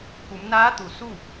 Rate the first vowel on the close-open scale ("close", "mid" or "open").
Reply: close